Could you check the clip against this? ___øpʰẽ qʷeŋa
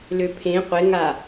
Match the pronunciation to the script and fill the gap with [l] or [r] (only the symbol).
l